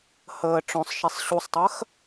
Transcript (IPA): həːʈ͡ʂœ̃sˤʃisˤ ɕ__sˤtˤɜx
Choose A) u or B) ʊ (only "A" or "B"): A